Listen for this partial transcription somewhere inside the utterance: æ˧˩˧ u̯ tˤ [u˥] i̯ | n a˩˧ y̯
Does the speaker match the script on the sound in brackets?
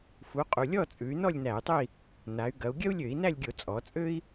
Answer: no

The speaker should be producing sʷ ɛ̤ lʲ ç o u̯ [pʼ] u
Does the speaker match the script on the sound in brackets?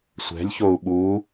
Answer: no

